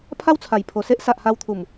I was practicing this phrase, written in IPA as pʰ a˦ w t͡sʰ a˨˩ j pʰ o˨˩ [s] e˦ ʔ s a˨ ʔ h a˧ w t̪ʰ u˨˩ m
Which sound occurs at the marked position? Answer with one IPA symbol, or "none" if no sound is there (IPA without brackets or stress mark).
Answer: s